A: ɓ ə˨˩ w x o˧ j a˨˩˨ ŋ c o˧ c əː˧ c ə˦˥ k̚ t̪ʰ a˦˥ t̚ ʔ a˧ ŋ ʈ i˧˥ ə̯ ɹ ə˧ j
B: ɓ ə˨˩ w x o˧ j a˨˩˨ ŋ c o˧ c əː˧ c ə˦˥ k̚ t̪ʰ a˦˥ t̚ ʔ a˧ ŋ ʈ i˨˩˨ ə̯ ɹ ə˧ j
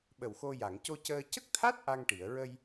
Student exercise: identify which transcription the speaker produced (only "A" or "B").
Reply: B